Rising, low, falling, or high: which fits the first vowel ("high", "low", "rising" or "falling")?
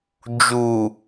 low